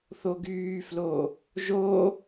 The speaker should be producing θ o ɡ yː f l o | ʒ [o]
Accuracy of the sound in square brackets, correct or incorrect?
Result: correct